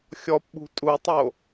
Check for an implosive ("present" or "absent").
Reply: present